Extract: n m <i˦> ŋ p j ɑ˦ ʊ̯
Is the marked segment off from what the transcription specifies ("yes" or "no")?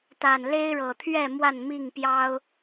yes